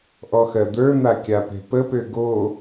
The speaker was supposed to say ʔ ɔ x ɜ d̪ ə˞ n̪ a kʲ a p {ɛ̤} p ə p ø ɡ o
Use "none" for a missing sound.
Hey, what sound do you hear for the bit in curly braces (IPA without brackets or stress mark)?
ɛ̤